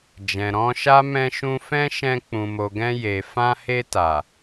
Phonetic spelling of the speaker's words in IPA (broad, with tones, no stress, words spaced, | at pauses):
d͡ʒɛ̃˨ɾɔ̃˧ʃa˦ mɛ̃˧ʃũ˧fɛ̃˦ʃɛ̃˧ k͡pũ˨mo˨ɡɛ̃˧ je˨ fã˧he˧ta˨